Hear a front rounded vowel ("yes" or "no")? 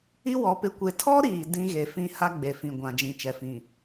no